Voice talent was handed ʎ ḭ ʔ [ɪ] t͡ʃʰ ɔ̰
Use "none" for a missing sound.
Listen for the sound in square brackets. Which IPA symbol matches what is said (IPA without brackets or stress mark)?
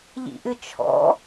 ɨ